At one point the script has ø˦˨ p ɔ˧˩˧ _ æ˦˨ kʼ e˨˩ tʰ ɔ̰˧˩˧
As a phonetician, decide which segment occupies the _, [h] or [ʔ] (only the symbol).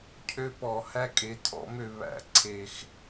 h